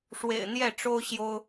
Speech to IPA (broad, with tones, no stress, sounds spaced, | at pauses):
ʂ w ḛ˨˩ ɪ̯ n̪ j ɛ˥˨ ʈ͡ʂ o˦ ʊ̯ ɕ j o˦ ʊ̯